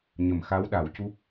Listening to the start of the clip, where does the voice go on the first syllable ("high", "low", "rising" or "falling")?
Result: low